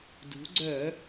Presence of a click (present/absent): present